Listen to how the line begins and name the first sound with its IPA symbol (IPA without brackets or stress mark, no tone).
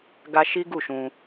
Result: ɡ